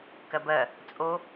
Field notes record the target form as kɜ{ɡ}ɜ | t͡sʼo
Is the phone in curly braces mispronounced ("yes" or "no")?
yes